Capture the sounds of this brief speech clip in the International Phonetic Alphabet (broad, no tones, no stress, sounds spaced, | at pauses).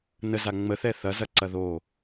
n ə z a ŋ͡m ə θ ɛ θ ɐ z ɐ ǀ ɐ ð o